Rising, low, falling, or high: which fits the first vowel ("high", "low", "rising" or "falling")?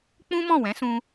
high